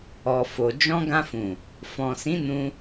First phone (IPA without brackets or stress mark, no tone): ɔ